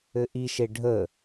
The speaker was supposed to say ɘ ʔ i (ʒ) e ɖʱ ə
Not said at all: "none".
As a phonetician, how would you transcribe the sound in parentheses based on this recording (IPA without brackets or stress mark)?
ʃ